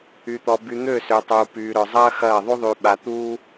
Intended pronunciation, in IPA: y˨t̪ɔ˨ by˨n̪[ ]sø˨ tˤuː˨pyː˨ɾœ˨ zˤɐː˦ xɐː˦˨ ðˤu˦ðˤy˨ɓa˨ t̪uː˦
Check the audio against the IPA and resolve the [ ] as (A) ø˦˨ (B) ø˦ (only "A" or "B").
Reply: A